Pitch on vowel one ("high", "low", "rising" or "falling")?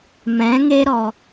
rising